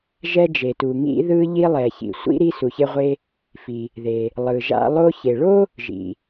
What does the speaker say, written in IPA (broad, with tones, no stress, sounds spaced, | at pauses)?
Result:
ʒ ɛ˧ d͡ʒ e˩ t u˩ ŋ ḭ˧ ð ɯ˧ ʎ i˧ lˠ ɛ˩ ç ḭ˩ sʷ ḭ˧ ɾ i˧ s u˩ ç e˧ ʁʷ e˧ | f i˩ | ð e˩ | lˠ ɯ˩ ʒ a̰˧ lˠ o˧ ç e˩ ɭ o˥ | ʒ ḭ˩